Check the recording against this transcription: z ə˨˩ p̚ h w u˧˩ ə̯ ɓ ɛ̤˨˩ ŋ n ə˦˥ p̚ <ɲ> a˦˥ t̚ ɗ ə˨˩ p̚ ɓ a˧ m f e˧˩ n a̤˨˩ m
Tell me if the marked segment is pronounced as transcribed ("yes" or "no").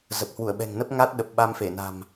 no